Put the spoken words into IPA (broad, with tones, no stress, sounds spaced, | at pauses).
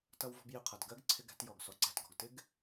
t ʌ˧ w v ɔ̤˧ b j ɪ˧ qʰ ʌ˩ d ɡ ɜ˥ ɡ ǀʰ ɪ˧ ɡ æ̤˧ t j ɔ˩ ɡ s ɔ˩ ǀ æ̤˧ t ɡ ɔ̤˩ ɡ t ɪ˥ ɡ